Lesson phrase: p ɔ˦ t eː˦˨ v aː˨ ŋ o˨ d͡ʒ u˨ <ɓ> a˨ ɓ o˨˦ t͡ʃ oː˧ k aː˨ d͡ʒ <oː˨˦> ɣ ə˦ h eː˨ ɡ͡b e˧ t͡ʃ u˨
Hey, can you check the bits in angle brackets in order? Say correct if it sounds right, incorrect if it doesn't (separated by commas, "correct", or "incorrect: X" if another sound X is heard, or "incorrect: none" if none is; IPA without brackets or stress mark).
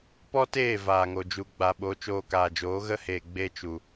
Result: incorrect: ɡ͡b, correct